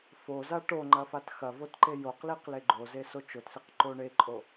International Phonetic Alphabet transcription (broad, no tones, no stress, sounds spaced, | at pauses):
f o z a ʈ o ŋ͡ǃ ɐ f a t x ɐ v o t ǃ e j o q l i q l e ɡ͡ǃ o z e s o t͡ʃ o t s i q ǃ o ɳ e ǃʼ o